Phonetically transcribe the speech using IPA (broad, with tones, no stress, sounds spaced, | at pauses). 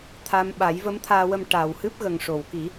t̪ʰ a˧ m ɓ a˨˩˦ j v ə˧˥ m t̪ʰ aː˧ w ə˧ m ʈ a˨˩ w h ɨ˦˥ p̚ ɣ ə˨˩ ŋ ʂ o˨˩˨ w k i˨˩˦